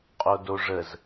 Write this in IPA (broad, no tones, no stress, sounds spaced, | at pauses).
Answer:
qʼ o d o ʐ ə z